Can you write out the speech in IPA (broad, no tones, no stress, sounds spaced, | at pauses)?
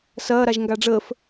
s ɐː ɾ a ʒ ŋ ɡ a ɖ͡ʐ əː f